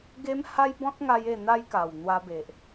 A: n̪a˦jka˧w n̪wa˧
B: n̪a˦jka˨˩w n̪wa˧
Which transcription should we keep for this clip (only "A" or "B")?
B